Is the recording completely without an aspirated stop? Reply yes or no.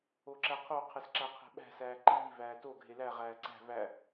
no